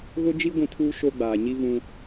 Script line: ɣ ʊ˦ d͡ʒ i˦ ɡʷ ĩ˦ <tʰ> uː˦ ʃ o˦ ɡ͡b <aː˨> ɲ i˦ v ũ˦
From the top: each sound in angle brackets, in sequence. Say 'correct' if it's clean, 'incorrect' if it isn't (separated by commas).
correct, correct